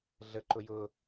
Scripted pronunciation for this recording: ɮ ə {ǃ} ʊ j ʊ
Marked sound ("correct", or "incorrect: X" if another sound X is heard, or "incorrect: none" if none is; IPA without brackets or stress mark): correct